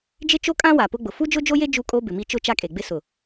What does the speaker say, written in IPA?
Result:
d͡ʒ ɪ˦ t͡ʃ o˦ kʼ ã˦ w a˨ p ʊ˦ ɡ͡b ʊ˨ f u˦ d͡ʒ ʊ˦ d͡ʒ o˦ j e˦ d͡ʒ u˦ kʼ o˦ b ɪ˨ m i˦ t͡ʃ ʊ˦ t͡ʃ a˦ kʼ e˨ ɡ͡b ɪ˦ s ʊ˨

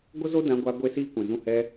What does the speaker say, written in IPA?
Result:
ɡʷ ə˦ z o˦ d ã˧ ɡʷ a˧ ɡʷ e˦ s iː˦ kʷ ɛ̃˨ z ũ˦ h ɛ˧

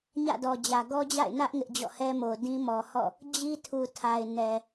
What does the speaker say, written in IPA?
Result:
ɲ ä̰˦˨ d ɔ˨ d͡ʑ ä˨ ɡ ɔ˦ d͡ʑ a̰˦˨ ɪ̯ n ä˦ ʔ ŋ ɪ˦ ʔ d͡ʑ ɔ̰˦˨ h ɛ˦ m o˨ d ĩ˦ m ɔ˨ h ɔ̰˦˨ | d͡ʑ i˦ tʰ u˨ tʰ a˨ ɪ̯ n ɛ˨

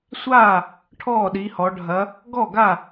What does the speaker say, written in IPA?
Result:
sʷ aː˥˩ | ʈʰ ɔː˥˩ ɗ i˩˧ h ɔ˩˧ ɖʱ ɐ˩˧ | ɡ ɔ˥˩ ɡ a˥˩

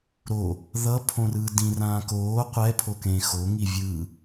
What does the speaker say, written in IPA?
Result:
ɾ o | ð ʌ pʰ õ r ɯː d ĩ r ãː k oː qʷ ɛ pʰ o k ẽ x o ŋ i vʲ ɯ

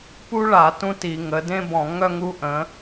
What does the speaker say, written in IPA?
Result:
p u˥ ɭ a˧˩˧ t ũ˥ t i˧˩˧ ŋ ə˩˧ d ẽ˥ b ɔ̃˧˩˧ ŋ œ˥ ŋ u˧˥ ʔ ə̃˩˧

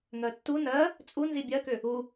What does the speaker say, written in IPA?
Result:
ŋ ɜ tː u n ɜ | t͡sʼ u n z i bʲ ɜ k ʏ | u

